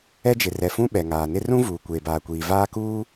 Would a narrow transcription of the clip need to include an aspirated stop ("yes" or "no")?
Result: no